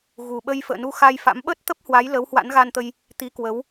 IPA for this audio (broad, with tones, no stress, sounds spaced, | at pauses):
ɣ u˨˩ ɓ ə˧ j f ə̰ː˧˨ n u˧ x a˧ j f a̰˧˥ m ɓ əː˦˥ t̚ t̪ ə˦˥ p̚ h w a˨˦ j l ə˨˦ w h w a̰˧˥ n ɣ a˧ n t̪ ə˧ j | t̪ i˨˦ k w ə˨˦ w